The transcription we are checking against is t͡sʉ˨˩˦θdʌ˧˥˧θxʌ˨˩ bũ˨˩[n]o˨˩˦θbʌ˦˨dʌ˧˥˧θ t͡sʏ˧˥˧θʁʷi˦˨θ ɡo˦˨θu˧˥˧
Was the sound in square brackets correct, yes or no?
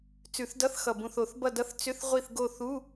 no